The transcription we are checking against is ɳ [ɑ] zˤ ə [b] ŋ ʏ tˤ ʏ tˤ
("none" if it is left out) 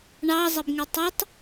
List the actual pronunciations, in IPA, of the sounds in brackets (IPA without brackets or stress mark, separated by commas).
ɑ, b